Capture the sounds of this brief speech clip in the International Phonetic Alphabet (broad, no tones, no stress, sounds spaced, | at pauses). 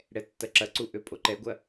ɽ ɛ tː ɐ ǁ ɐ ǀ u ʔ ø pʼ o ǃ ɛ ɡʷ ɐ